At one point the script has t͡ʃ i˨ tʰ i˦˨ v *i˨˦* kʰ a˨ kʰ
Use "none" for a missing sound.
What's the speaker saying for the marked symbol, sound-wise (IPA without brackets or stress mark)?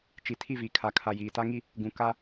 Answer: i˨